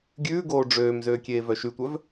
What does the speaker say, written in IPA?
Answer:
ɡʲʉː ɡoːɖ͡ʐøːmzøː kʲeːvœʃytʷœv

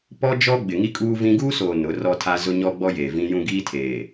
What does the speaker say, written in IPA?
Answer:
pɔ˦d͡ʒɔ˦ ɡ͡bɪ˨ŋi˦kʼuː˦vĩ˦ ɡuː˦soː˨ nʊ˨˦rɔ˦tʰa˦ zʊ˦ɲɔ˦ ɡ͡bɔ˦jeː˨vĩ˦jũ˦ ɡiː˦tʰeː˨

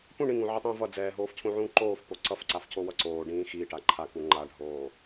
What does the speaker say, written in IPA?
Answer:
pũ ɳĩŋũʕetˤĩː vʌ d͡zɛːɦoːfcʰũʕũː ǃoːfpo ǀʌfǀafcowʌ ǀoːɖĩː xiːʈa ǃʰaku ŋ͡ǃaɖʱoː

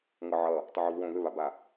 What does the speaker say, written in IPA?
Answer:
ŋɤʕʌ | tˤʊʕovwõ ðʏβaba

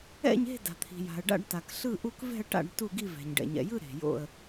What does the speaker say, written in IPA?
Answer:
ɛ̰˥˧ɲe̤˥˧ da̤˨t̪ʰi̤˨ja̤˨ə̯ɖa̰˥˧ɖ ta˨kɬɯ˥˧ʔu˥˧k vɛ̤˥˧ə̯ʈa̰˥˧ɖ tu˥˧ɡi˥˧vɛ̤˨ɲ ɖɛ̰˨ɲɛ̰˨jɯ˥˧ ɾe̤˨jo̰˥˧ə̯

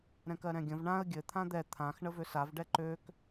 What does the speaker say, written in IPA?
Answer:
ɾɛ̃kɜɾɛ̃ɡʲə̃v ɳãə̯ ɡʲɘ t̪ʰãd̪ɛ t̪ʰãx ɳəvøsav ɖɛǃøk

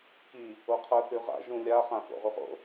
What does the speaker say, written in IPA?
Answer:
ki | oqʰʌ θʉʁa̰ ʒũlʲa χãfo̰ʁuʁo̰

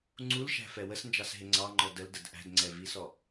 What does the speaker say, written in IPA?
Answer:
ŋ͡ǀulʃæ̤fɛ wəsnd͡ʒɑsɦɪ ŋ͡ǀɑŋ͡ǃɔ dəldəd ʔæ̤dŋ͡ǀɛvisɔ

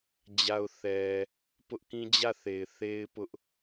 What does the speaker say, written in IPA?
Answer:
d͡ʑa˨ʊ̯θɛ˨ | pʊ˦ʔkĩ˦ d͡ʑä˦˨ θe˨ɪ̯ θe˦ɪ̯pʊ˦ʔ

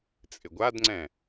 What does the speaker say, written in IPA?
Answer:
t͡sʼɪɡʷadŋ͡ǀɛ̃

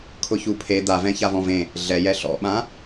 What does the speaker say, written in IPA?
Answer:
kʰʊçupʰe d̪avɛ̃ çavɔ̃vẽ | ɮɛjɛ ɬɔ̰ɓã

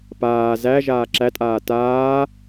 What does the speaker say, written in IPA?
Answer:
paː zæʒaː ǁætʼaː taː

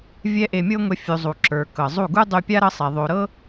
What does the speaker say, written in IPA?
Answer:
vʲɛ˦ʔe˧mʲɤ˦ŋʷɛ˧ fʲu˨zˤu˨ ǁə˞˨kɤ˨zˤu˦˨ ɡu˦dˤy˧pʲa˦ ɾɤ˦sˤɛ˨ ðˤo˨ɾɤ˦

